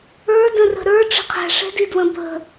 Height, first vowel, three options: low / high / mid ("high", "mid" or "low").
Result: mid